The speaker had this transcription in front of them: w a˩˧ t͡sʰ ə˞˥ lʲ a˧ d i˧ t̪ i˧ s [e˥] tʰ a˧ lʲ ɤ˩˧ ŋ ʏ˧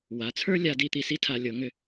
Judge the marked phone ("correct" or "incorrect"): incorrect